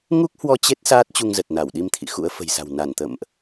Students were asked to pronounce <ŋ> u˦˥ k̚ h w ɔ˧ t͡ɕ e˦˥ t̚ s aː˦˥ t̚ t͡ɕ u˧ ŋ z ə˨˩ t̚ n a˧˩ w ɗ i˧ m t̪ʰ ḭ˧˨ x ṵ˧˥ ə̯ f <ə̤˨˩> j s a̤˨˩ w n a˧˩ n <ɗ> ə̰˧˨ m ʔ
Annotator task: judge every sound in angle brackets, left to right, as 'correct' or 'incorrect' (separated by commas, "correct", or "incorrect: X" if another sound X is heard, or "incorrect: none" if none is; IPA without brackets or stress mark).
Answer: correct, correct, incorrect: t̪